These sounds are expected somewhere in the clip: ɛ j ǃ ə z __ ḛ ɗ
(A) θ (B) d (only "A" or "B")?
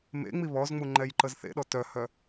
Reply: A